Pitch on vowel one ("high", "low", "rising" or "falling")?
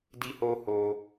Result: high